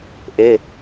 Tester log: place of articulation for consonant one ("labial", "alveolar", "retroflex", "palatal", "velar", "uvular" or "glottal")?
glottal